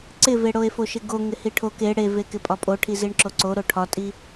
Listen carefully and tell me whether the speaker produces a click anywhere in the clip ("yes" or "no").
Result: yes